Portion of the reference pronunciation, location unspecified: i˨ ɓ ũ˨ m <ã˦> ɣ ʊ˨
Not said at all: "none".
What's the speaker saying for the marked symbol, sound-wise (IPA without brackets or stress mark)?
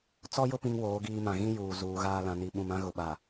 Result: ã˦